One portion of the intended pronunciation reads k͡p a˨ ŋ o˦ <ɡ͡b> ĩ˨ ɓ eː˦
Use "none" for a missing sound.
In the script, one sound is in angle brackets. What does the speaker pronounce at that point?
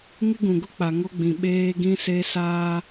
ɡ͡b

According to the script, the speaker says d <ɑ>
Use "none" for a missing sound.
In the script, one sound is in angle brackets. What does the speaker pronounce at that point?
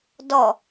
ɔ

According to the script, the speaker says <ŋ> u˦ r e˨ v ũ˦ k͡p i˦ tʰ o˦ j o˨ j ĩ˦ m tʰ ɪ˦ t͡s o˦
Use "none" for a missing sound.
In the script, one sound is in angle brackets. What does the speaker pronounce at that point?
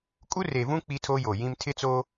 kʼ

